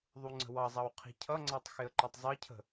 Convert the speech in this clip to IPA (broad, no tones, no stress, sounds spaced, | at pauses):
ðˤ u ŋ͡ǀ ə̤ w ɑ zˤ ɑ w qʰ i̤ cʰ ʌ ŋ͡ǀ æ tˤ x ɪ ə̯ ǃ ɒ tˤ zˤ ɜ cʰ ə̤